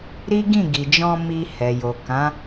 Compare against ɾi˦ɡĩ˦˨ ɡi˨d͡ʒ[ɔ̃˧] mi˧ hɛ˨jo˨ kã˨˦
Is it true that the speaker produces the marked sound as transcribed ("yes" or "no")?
yes